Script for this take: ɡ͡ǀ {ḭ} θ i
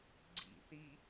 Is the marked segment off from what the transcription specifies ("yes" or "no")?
no